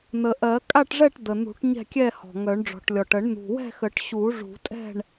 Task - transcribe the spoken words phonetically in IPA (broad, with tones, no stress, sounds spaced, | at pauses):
n̪ ə˨˩ ʔ ɜ˨˩˦ kʼ a˥˨ ʈ ʐ ɛ˥˨ ʈ d̪ ə˨˩ n̪ ṳ˨˩˦ ʈ ɲ ɛ̤˥˨ kʲ ɛ˥˨ h ɔ̤˨˩ ŋ œ˨˩˦ ɳ ɖ͡ʐ ɔ̤˨˩ ʈ lʲ ɔ˨˩ ʈ ə˨˩˦ ɳ n̪ ṳ˨˩ w ɛ̤˥˨ x ə˨˩˦ ʈ ɕ u˨˩˦ ʐ ṳ˨˩˦ tʼ ɛ̤˥˨ ɳ